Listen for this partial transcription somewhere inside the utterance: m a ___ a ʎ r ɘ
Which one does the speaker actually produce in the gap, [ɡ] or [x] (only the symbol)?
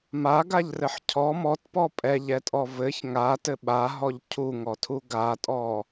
ɡ